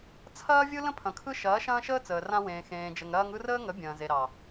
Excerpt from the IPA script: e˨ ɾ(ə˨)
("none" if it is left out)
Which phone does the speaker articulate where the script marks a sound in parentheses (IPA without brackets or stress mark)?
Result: ɑ˨